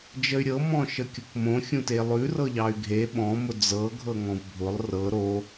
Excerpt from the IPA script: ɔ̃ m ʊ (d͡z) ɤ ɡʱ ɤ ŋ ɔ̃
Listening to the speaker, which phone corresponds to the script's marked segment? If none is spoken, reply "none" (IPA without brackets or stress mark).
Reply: d͡z